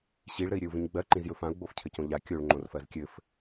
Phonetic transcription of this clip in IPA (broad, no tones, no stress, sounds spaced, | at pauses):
ɕ i ɭ ɾ ɘ i̯ ɾʲ ɘ u̯ v ĩ ɲ ɡ͡b ɜ ǃ ĩ z j ɵ f ã u̯ ɡ͡b o f cʰ ɘ c õ ʎ a kʲ o ɭ ŋ͡ǃ õ r f ɜ z kʲ ɘ f